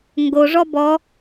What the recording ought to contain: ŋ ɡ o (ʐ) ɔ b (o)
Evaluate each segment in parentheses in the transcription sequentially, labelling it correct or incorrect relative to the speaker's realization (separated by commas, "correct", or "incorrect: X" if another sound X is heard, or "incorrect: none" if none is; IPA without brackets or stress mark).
correct, incorrect: ɔ